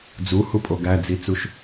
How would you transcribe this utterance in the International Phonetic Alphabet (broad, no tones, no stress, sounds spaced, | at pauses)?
d͡z u h u pʼ o ɡ æ d͡z i t͡s u ʃ